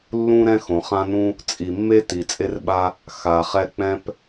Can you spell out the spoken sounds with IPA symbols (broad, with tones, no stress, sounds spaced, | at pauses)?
lː ũ˥ ɾ ɛ̃˥ x õ˩ χ ã˥ n ũ˥ | t͡sʼ i˩ mː e˥ t i˩ t͡sʼ e˥ r ɓ a˥ | x a˩ χ ɛ˥ k͡p ɛ̃˥ p